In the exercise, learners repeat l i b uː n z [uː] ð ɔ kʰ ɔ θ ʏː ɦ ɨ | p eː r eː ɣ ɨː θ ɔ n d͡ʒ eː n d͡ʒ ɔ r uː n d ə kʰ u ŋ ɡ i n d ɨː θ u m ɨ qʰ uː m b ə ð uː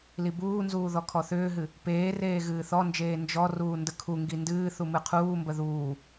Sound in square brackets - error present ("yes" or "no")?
no